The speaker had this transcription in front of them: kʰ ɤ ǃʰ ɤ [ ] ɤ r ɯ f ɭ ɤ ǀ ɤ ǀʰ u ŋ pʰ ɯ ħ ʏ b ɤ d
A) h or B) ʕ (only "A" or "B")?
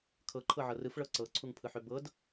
B